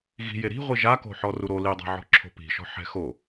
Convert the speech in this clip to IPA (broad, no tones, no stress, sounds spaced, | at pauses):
ɣ i̤ j e ɾ i̤ ʁʷ i ʒ a k o̤ ħ ɔ r u ɾ o l i dˤ a̤ ʕ ɔ̤ ǁʰ o̤ p i̤ ʃ ɔ̤ ħ ɛ̤ x o